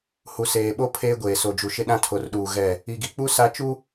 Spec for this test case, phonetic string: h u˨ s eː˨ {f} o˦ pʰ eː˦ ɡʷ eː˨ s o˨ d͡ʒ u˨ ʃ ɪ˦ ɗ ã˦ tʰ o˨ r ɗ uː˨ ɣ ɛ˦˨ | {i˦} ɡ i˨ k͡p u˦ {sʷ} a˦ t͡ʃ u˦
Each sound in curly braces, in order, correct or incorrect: incorrect: ɓ, incorrect: i˨, incorrect: s

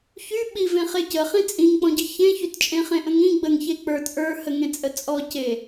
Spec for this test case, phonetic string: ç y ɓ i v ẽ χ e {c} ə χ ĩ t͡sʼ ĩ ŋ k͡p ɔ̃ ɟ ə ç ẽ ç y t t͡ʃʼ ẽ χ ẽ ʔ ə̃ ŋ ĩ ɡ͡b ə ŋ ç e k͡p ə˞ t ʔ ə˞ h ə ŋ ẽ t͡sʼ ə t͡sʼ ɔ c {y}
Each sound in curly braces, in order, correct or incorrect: correct, incorrect: e

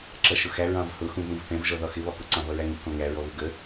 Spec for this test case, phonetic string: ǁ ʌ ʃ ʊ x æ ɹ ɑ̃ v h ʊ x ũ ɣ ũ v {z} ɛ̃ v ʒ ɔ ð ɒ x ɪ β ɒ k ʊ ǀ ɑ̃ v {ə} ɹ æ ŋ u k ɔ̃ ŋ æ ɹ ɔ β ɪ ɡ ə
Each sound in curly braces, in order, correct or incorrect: incorrect: θ, incorrect: ʌ

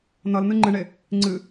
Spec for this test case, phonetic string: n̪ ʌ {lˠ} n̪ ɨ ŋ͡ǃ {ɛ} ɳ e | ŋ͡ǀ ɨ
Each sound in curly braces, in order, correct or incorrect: incorrect: l, incorrect: ɨ

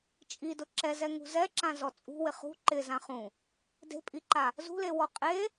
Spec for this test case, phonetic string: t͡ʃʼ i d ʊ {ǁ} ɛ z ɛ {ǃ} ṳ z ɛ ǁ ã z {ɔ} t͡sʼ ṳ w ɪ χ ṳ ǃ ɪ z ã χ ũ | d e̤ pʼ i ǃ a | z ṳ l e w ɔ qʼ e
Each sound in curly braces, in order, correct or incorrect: correct, incorrect: ŋ, correct

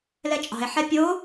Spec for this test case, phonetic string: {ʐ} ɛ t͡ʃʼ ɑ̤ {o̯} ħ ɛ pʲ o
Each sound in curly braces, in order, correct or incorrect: incorrect: l, incorrect: e̯

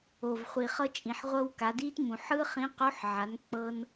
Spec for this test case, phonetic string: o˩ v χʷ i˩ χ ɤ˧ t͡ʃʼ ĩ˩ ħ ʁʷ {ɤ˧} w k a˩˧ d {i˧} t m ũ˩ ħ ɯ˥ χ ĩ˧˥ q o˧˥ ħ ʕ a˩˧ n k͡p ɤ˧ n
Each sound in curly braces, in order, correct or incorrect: correct, incorrect: i˥

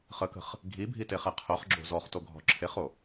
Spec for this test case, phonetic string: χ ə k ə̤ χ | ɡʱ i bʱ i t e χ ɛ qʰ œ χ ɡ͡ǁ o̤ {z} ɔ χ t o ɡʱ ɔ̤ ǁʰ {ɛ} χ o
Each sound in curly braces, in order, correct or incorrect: correct, incorrect: e

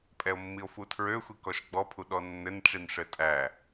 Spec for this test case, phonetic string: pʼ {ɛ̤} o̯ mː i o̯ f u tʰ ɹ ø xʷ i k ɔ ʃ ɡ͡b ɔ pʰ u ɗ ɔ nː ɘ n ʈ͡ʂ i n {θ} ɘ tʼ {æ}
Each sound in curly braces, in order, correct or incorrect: incorrect: ɛ, incorrect: ʂ, correct

